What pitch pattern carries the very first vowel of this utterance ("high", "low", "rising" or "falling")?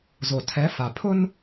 low